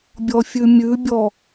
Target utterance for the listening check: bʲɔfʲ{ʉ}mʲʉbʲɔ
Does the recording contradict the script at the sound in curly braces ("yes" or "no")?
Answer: no